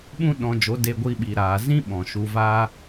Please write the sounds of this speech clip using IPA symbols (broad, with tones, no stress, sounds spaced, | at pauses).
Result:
ɓ ũ˦ ɗ ɔ̃˧ d͡ʒ o˨˦ d e˧ ɡʷ i˧ ɓ i˨ ɾ aː˨ z ĩ˦ ɓ ɔ̃˨ ʃ u˧ v aː˦